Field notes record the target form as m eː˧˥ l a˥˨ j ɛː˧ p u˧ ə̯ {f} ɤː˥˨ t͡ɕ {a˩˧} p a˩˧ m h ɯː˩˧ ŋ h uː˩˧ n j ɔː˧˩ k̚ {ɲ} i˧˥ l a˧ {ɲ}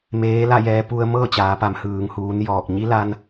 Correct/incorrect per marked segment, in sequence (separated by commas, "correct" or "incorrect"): incorrect, incorrect, correct, incorrect